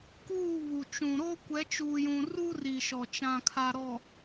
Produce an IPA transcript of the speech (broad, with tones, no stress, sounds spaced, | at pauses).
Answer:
k uː˦˨ β u˨ t͡ʃ ũ˨ ɾ o˦ kʷ ɛ˨˦ t͡ʃ uː˨ j ũ˨ r u˦ r i˨ ʃ ɔ˨ t͡ʃ ã˨ kʰ a˨ ɾ ɔ˨